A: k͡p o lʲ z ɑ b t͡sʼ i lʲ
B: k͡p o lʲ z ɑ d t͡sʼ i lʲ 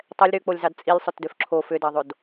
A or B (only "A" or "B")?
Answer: B